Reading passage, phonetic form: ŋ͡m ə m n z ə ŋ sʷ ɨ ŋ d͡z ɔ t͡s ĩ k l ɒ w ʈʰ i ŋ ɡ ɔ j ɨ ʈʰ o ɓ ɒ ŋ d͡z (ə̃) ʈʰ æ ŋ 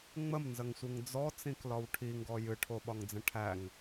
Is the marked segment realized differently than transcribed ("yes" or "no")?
no